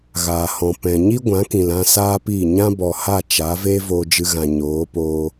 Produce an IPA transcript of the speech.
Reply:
ɣaː˨hɔ̃˨ pɛ̃˨ɲi˦ɡʷã˨˦kĩ˨l ã˧ saː˦pi˦˨ ɲã˦bɔ˨ha˦˨ t͡ʃa˨˦ve˦ voː˧d͡ʒɨ˧ɣã˨ ɲoː˨˦poː˧

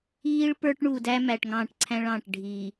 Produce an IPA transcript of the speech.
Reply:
iː˦ɭpə˞˦ʈɳu˨ dæ˦mæ˨ʈ ŋɑ̃ː˦˨ʈǀʰæ̃˦ɭɑ̃ː˨ʈ ɖʱi˨

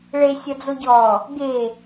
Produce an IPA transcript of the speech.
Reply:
ɭe sʲɒd͡zoɟɔ | ɡe

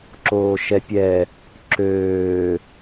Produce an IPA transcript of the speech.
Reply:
ǁoːʃɛpʲɛ | ǁøː

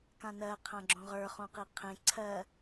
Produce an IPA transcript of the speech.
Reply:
kãnɜ qʰãɡ͡ǁõʁə˞ χõqiqʰẽ ǀʰɜ

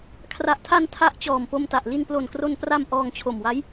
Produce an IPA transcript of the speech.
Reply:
kʰra˨˩ʔtʰa˧n tʰa˦˥ʔt͡ɕɔː˨˩mpo˧mta˨˩ʔ li˧nplo˨˩nkro˧npra˧m ʔɔː˧ŋt͡ɕʰo˨˩mwa˦˥j

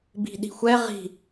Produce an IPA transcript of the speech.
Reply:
bi̤ɗi̤xʷɛ ʁi̤

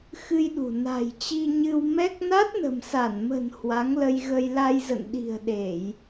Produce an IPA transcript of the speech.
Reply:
xɨ˧jɗṳ˨˩ na̤˨˩jt͡ɕi˧ ɲɨ˧w mɛ˦˥k̚ na˦˥t̚nə̤˨˩msa˧˩nmə̤˨˩n hwa˨˦ŋlə˧jɣə˧j la˧jzə̰˧˨nɗi̤˨˩ə̯ɗe˧˩˨j

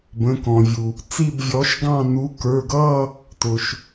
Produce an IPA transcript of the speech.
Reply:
bə̃˩˧˩kɔ̃˩vʲu˩ | t͡si˥˧bvʲɔ˨˥ʃ ɡɑ̃˥˧nu˨˥ kə˞˩˧˩ɡʌ˥˧ | tʊ˩ʃ

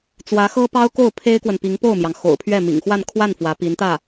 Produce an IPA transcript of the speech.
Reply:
t͡swä˧˥xɤ˥ pɑ˥ʊ̯ko˥˩ʊ̯pʰe˥ɪ̯kwə˨n pi˧˥ŋpo˥˩ʊ̯mjɑ˩ŋ xo̰˨˩ʊ̯pʰɥɛ˥˩mḭ˨˩ŋ xwa˥˧nkʰwa˥˩n fwä˧˥pi˧˥nt̪ä˥˩

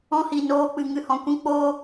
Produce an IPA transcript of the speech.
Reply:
ɔ̃˦hi˨noː˧k͡pɨ˨ ŋɨ˨hɔ̃˨kʷĩ˧ k͡poː˧

